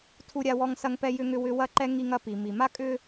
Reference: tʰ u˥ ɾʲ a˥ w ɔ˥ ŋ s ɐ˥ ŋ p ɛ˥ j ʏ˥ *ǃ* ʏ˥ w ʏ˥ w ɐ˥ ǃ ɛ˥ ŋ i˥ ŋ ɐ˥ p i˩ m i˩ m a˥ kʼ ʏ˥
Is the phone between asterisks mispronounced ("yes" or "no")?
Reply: yes